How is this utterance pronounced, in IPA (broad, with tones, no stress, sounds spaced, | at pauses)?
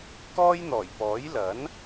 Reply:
k ɔː˥ j n̪ ɔː˨˩ j p ɔː˨˥ j l ɐ˨˥ n